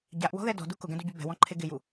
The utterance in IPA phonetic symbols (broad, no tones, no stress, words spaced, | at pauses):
ɟaʔwɔ̤ðɛ dɔ̤du kʊɡɛ̃duɟu bɛ̤wɔ̃ǃʰe ɡɪju